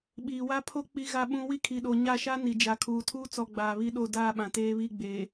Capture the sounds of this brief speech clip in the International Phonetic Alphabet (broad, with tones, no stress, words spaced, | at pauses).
ɓiː˨wa˦pʰo˦ k͡pi˦ɣa˦ɓũ˦ wi˦kʰi˨ɗo˨ ɲa˦˨ʃa˦ ni˨ d͡ʒa˨kʰuː˨ tʰuː˦t͡sɔ˨ ɡ͡baː˨βi˦ɗo˦˨ daː˦˨ɓã˨ teː˦βi˦˨ɡ͡beː˨